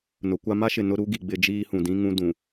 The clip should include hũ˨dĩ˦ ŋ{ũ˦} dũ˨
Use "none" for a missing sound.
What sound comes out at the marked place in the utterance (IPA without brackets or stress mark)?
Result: ũ˦